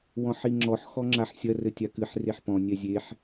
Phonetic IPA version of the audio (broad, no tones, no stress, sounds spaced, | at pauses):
w ɔ̃ ħ i ŋ͡ǁ ɔ ħ x ɔ ŋ͡ǁ a ħ sʲ ɐ r ɘ tʲ a k ɨ ħ r e ħ p ɔ̃ nʲ ɛ zʲ e ħ